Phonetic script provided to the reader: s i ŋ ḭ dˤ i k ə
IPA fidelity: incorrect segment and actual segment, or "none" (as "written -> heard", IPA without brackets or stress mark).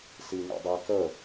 none